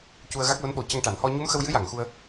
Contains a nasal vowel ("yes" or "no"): no